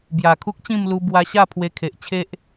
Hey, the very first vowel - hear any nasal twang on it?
no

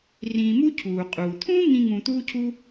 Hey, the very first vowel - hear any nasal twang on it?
yes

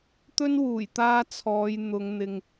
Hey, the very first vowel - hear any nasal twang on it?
no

